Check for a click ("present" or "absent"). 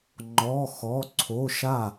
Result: present